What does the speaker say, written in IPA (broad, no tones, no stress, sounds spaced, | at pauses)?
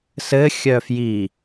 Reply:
s ɘ xʲ œ f j i